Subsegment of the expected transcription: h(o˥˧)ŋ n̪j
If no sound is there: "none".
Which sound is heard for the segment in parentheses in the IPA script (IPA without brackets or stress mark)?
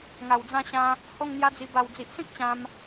o˥˧